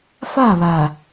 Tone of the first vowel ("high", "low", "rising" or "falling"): falling